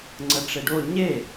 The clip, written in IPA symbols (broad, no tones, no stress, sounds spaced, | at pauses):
ŋ͡ǀ ə ʈ͡ʂ e ɖ o ɲ e